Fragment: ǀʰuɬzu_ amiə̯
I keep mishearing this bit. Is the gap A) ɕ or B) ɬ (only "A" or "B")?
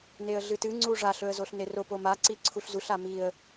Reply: B